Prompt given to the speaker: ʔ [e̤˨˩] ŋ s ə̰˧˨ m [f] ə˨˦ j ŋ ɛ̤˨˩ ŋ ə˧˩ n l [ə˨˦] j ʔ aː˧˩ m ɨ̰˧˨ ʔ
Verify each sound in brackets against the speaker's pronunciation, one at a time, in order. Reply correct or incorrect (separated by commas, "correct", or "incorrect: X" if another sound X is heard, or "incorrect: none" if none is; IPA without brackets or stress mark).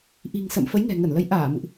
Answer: incorrect: i̤˨˩, correct, correct